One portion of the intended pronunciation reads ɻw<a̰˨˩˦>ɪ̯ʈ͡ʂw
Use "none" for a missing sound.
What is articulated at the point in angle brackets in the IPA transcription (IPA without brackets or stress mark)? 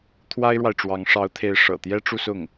a˨